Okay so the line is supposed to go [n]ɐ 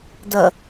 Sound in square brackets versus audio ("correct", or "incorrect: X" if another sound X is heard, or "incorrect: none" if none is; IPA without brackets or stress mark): incorrect: d